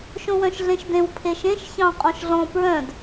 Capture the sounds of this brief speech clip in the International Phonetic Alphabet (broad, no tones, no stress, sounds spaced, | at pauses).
ʃ õ w œ̃ ʃ ɮ ẽ ʃ d ẽ w pʰ e ʃ ẽ ʃ ç ɑ̃ qʼ ɔ̃ ʃ ɮ ɔ̃ p ɹ œ̃ d